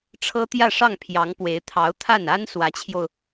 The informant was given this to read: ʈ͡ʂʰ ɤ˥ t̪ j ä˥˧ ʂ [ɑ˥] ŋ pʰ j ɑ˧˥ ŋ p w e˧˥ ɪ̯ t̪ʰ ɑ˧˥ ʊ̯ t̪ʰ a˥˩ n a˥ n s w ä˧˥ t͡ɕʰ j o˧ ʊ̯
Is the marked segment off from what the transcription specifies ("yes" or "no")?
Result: yes